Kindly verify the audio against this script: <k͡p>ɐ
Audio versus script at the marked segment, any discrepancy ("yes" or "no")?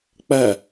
no